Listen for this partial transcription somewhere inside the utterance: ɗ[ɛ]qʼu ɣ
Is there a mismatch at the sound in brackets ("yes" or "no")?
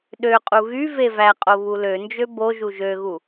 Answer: yes